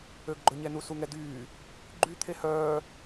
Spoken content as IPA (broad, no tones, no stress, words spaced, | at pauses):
øɡɡ͡ǃɵɲɛnu suŋɛdyː | ɡ͡ǃy t̪ʰehœː